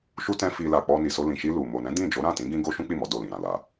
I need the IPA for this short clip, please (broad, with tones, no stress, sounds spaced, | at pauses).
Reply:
ʃ u˦ t ɛ̃˦ f i˧ l a˨ k͡p ɔ˧ n i˨ s o˧ l ĩ˨ ʃ i˧ l u˨ m o˨ n ɛ̃˨˦ d ĩ˦˨ d͡ʒ o˨˦ ɾ ã˦˨ t ĩ˨˦ ɡ ĩ˦ ɡ o˦ ʃ ũ˦ k͡p i˦˨ m ɔ˨˦ d o˦˨ l ĩ˨ ɾ ã˨ l a˨